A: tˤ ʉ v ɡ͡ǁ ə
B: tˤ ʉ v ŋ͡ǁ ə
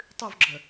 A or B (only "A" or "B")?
A